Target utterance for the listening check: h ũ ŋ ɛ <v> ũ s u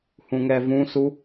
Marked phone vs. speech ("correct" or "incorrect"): correct